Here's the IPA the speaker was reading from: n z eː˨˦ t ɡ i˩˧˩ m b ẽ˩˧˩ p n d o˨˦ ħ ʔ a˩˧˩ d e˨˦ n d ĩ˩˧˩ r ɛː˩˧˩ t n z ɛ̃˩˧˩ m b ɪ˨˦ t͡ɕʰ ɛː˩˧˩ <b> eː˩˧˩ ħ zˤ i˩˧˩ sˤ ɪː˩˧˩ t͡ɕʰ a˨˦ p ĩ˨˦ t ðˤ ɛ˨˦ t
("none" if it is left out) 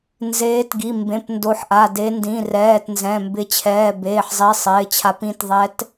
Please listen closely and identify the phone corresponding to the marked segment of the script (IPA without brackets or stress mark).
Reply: b